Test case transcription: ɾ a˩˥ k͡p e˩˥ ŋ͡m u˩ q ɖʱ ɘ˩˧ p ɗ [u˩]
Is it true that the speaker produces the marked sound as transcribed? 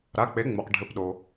no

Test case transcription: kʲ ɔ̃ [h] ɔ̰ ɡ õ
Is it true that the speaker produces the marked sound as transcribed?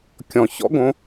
no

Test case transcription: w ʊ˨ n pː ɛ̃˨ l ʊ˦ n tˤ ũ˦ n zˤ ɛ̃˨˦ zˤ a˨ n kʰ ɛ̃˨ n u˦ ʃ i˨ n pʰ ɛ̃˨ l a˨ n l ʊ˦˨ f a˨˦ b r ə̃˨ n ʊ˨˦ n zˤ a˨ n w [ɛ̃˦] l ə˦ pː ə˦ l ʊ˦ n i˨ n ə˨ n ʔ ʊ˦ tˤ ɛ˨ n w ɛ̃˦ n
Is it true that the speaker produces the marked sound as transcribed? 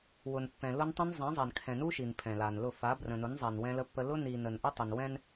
yes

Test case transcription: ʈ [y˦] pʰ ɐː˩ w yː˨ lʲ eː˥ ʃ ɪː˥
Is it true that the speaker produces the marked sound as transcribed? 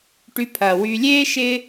no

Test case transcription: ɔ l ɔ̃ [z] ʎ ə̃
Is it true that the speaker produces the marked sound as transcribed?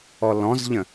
yes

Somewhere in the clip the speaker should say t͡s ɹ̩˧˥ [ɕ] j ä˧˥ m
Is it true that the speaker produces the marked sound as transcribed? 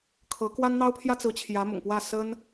no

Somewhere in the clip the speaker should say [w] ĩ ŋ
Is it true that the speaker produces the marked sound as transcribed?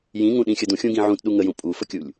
no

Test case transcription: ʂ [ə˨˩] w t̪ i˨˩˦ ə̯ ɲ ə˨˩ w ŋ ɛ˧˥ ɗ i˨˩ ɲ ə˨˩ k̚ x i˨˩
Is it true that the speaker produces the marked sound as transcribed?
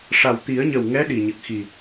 no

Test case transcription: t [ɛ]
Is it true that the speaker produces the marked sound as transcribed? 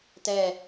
yes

